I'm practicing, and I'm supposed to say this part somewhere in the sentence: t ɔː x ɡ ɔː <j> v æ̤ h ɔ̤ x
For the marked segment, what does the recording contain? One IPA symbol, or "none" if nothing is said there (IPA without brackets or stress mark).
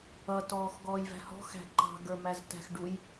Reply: j